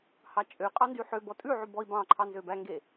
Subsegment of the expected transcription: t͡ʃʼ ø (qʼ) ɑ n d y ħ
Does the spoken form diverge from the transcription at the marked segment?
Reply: no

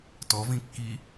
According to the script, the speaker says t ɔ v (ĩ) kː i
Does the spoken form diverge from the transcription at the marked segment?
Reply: no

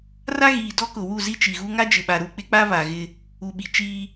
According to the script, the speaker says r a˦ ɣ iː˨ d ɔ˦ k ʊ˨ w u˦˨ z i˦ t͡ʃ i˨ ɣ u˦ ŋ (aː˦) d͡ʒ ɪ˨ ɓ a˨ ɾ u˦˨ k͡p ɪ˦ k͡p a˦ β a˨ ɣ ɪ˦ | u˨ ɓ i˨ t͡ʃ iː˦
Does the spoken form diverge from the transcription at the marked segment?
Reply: yes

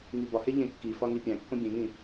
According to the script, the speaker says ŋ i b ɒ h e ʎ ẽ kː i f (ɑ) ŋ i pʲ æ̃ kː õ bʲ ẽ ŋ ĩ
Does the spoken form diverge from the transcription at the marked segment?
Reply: yes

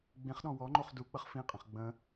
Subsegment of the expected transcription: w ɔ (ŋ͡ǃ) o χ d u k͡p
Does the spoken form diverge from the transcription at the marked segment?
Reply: no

